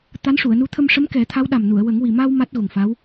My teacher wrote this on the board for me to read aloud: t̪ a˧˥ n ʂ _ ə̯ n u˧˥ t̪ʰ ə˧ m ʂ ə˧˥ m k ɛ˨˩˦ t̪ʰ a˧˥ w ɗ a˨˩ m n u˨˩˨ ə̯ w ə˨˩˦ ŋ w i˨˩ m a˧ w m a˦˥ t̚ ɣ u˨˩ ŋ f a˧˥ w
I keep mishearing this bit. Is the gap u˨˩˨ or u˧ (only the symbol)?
u˨˩˨